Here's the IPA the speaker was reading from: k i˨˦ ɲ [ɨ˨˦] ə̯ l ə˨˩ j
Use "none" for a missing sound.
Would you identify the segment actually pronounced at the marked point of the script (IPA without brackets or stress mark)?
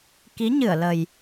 ɨ˧˩